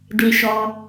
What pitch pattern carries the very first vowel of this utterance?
low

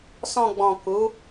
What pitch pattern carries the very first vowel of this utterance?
low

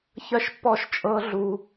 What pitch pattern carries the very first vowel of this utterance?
high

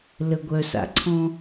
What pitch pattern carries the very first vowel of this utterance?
low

